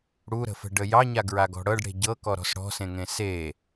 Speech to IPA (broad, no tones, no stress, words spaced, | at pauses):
ɽuɾə̤fə̤ɖə jɑɲaɡɹaɡɔ̤ ɽɤɖɽe̤ ɟɤkɔɾɔ̤s ɽɔ̤sẽŋẽ se